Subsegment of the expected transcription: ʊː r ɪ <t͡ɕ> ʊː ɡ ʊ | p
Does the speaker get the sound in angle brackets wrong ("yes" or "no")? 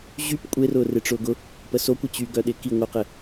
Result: yes